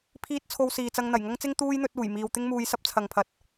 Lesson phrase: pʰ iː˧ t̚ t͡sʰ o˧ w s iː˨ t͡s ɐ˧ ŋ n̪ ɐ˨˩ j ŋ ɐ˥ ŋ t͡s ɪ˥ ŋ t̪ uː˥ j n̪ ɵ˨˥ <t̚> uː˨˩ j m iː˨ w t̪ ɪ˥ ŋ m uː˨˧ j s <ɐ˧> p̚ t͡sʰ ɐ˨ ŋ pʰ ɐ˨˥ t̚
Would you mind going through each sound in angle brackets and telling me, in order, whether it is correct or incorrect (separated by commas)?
correct, incorrect